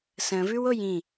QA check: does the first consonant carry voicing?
no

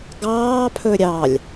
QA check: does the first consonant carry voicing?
yes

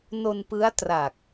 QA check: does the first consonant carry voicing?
yes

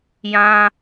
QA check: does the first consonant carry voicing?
yes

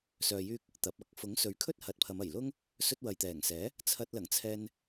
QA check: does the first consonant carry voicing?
no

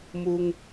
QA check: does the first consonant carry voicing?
yes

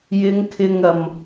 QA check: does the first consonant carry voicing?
yes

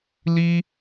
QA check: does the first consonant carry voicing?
yes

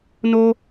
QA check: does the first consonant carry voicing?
yes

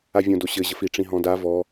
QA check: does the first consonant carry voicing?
yes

